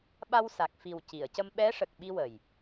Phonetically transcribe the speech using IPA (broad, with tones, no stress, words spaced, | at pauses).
ɓa˧wsa˨˩k̚fi˨˩w ci˨˩˨ə̯cə˧m ɓɛ˧˥ʂə˨˩k̚ɓi˧ wə˨˩j